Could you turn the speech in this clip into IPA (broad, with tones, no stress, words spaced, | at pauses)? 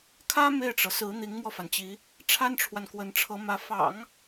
kʰä˥ me˥˩ɪ̯ʈ͡ʂɤ˩sɹ̩˧˥ n̪i˧˥ŋmwɔ˧fa˩nt͡ɕi˧˥ | ʈ͡ʂʰa˥nʈ͡ʂʰwa˨nkwə˧˥nʈ͡ʂʰɤ˧˥ mä˧˥ fɑ̰˨˩˦ŋ